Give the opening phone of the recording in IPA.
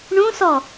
ɳ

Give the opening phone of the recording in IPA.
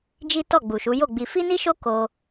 d͡ʒ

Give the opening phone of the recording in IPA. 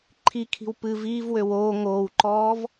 ǃʰ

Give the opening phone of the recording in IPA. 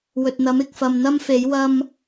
w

